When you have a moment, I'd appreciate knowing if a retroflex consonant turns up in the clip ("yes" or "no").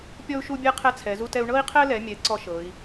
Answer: yes